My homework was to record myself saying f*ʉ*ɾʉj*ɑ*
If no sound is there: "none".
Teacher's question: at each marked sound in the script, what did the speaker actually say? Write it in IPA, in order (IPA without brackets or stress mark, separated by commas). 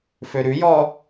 ø, ɔ